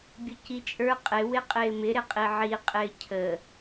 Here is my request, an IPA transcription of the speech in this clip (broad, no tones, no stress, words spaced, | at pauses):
bʲʊcit͡ʃʼə˞ qʼɪ wɪqʼɪːmɪ ɾɪqʼiʕi qʼɪːcʰə